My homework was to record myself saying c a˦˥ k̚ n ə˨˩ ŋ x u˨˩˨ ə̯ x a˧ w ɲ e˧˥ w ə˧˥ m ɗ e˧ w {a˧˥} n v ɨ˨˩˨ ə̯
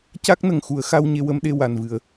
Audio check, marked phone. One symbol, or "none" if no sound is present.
a˨˩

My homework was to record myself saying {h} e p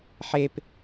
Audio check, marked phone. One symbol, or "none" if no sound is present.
ħ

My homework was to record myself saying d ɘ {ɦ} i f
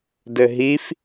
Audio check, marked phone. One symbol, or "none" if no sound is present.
ɦ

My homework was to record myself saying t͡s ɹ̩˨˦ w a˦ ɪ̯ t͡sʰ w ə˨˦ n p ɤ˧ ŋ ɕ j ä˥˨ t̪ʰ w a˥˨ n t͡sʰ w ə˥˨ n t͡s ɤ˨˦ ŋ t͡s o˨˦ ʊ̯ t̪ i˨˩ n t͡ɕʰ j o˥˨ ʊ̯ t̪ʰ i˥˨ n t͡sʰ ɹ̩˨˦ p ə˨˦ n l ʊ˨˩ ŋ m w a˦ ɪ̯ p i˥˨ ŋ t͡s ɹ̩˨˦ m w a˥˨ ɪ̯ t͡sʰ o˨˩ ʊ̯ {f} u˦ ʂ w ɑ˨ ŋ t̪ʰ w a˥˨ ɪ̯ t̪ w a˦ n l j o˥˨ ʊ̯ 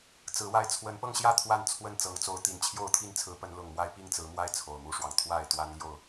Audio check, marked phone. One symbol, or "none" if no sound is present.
m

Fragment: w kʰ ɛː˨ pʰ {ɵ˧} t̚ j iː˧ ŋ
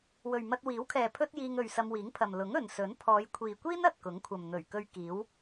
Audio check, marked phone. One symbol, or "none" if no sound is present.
ɵ˥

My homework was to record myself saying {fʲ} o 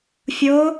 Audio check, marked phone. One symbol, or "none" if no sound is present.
fʲ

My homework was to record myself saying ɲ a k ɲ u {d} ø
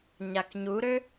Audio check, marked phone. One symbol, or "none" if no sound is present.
ɾ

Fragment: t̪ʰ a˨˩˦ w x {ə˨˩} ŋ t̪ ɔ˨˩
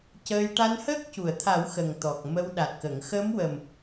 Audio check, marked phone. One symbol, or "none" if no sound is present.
ə˨˩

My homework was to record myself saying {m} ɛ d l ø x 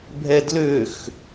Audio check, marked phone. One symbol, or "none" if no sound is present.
bʱ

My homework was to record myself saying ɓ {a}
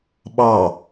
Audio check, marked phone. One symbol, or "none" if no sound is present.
ɑ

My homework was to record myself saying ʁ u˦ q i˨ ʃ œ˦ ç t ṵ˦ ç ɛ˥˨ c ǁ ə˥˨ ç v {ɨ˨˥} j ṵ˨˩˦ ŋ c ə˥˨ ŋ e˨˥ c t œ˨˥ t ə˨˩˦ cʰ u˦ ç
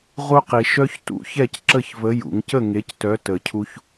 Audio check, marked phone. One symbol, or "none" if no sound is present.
ə˨˥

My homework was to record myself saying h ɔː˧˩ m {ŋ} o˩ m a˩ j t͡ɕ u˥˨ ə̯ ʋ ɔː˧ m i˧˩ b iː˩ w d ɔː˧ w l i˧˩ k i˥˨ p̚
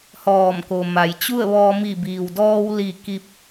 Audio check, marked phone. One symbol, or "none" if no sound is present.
k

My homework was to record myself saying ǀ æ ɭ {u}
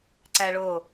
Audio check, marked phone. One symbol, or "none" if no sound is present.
o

